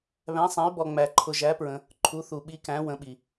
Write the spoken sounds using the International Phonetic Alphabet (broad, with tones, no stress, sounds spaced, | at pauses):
β æ̃˧˥ sˤ æ̃˧˥ y̯ b ɔ˧ ŋ͡m æ˧ ǃʰ ʊ˧ ʒ æ˧˥ p ɹ ə̃˧ | ǃʰ u˧˥ θ u˧ ɓ i˧˥ k æ̃˧˥ w ə̃˧˥ ɓ i˧